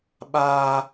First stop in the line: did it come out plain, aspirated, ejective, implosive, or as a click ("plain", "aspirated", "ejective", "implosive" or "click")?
implosive